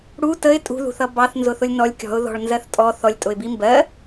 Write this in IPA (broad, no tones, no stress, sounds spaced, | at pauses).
ɽ u t ə ɪ̯ tʼ ṳ ð ṳ θ ʌ b ɑ θ n z ʊ θ ʊ lʲ n ɔ lʲ kʲ ɔ̤ ʊ̯ ð ɔ̤ ɭ n z ɜ θ tʼ ɔ θ ɔ lʲ tʼ ʊ ɪ̯ b i m b ɜ